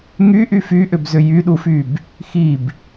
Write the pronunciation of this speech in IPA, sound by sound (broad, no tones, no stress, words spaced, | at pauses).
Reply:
ŋyʔy fyʔʏbzʏ jyɗufyb | xib